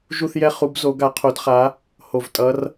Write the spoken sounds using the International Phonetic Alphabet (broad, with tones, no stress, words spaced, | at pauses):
ʒu˦˨θjɛ˦˨χu˨˦bzo˨˦ ɡa˨˦qʰo˨˦d χa˨˦ | ho˨˩vtʼʌ˨˦r